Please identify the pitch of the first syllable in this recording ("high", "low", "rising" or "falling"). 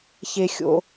high